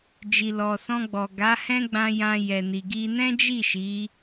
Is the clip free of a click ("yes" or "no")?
yes